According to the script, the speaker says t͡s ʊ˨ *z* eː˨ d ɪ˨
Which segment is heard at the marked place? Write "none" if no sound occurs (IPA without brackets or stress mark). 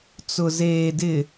z